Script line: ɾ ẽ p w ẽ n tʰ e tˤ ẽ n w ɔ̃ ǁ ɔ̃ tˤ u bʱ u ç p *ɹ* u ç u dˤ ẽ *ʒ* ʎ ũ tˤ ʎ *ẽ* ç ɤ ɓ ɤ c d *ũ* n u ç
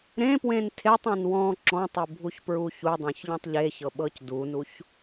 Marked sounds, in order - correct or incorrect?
correct, incorrect: ç, incorrect: e, incorrect: u

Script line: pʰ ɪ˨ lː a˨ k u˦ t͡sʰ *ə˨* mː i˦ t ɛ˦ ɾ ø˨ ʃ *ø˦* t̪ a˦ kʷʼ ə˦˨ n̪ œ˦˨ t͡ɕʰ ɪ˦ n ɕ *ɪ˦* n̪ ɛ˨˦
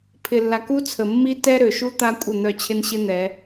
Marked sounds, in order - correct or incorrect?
correct, incorrect: u˦, correct

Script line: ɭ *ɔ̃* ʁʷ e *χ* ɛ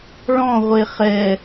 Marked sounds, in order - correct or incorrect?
correct, correct

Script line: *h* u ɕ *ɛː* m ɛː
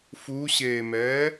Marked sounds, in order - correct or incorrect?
incorrect: f, incorrect: eː

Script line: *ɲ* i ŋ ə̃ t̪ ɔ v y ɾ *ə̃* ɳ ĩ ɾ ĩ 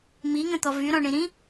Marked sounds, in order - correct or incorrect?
incorrect: m, incorrect: ɔ̃

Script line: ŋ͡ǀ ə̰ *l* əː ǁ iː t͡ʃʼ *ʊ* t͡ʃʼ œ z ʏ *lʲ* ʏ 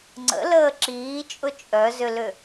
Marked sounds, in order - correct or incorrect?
correct, correct, incorrect: l

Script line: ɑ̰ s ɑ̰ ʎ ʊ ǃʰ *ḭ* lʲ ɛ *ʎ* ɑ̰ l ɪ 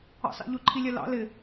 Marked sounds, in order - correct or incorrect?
incorrect: i, incorrect: l

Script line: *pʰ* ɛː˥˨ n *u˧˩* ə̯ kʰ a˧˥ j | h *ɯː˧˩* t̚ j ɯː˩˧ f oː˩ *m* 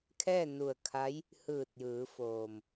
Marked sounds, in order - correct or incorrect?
incorrect: kʰ, correct, correct, correct

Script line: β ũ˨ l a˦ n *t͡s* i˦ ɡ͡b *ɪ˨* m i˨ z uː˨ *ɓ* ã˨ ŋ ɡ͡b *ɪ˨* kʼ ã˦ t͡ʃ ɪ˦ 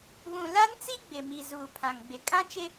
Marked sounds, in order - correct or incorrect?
correct, correct, incorrect: pʰ, correct

